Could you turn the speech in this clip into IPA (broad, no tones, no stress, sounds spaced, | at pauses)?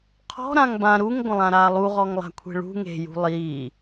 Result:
qʰ ɔ̤ ɾ ã ŋ b ã ɾ u ŋ ɡʷ ə̃ lˠ ã ɾ aː lˠ u ʁ ɔ ŋ lˠ a̤ kʷʰ e̤ ɭ ṳ ŋ e̤ j ṳ lˠ iː